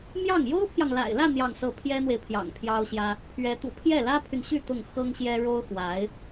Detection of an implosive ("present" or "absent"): absent